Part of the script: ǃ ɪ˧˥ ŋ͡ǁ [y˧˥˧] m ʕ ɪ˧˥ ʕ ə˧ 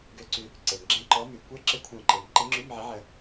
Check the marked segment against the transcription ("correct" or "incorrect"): correct